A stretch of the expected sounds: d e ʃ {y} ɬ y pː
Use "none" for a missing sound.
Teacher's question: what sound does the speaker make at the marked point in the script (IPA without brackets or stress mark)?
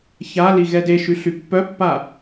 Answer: y